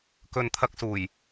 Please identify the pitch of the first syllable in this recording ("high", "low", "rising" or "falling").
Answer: low